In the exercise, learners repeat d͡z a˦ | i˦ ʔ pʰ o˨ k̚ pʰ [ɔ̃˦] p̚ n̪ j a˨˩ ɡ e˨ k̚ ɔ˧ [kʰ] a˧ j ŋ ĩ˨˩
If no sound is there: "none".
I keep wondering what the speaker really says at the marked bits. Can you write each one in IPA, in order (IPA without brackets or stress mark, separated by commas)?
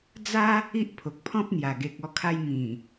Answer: ɔ̃˦, kʰ